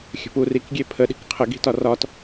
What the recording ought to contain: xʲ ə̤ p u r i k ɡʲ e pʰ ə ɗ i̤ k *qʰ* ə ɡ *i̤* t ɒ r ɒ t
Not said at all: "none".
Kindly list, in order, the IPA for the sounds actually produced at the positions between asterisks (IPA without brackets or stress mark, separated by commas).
qʰ, i̤